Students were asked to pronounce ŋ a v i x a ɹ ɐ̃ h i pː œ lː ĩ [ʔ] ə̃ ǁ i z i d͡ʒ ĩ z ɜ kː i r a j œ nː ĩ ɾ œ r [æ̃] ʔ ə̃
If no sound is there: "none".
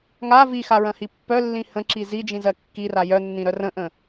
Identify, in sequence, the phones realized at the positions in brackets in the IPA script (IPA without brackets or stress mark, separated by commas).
h, ə̃